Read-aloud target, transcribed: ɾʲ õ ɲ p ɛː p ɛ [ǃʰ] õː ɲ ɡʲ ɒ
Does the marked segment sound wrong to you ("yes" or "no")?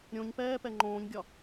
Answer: yes